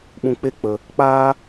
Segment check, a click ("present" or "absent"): absent